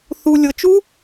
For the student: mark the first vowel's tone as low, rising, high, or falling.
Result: low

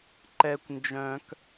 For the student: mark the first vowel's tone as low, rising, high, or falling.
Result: high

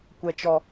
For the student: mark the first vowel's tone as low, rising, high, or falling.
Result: high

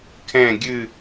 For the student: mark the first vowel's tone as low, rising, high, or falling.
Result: falling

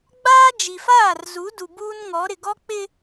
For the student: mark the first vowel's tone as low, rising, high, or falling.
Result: high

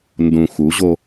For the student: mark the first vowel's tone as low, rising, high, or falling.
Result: low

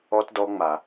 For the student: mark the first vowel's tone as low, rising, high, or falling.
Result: high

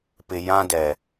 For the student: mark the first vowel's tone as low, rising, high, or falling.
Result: low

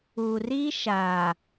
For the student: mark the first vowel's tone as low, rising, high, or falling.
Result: low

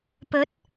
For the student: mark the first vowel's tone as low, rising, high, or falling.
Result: rising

